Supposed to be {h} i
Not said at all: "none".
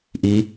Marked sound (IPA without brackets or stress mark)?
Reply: ʔ